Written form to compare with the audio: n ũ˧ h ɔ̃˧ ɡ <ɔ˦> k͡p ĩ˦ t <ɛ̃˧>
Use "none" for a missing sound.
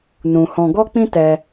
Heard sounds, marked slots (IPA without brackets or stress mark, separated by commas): ɔ˦, ɛ˧